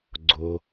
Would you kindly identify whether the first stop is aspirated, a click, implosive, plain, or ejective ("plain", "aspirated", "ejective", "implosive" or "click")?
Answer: click